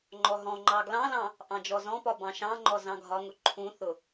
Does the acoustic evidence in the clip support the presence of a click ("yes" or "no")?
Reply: yes